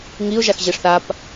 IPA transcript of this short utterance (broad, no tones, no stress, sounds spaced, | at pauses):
ŋ i ʊ̯ ʒ a x ʑ e ʂ θ a p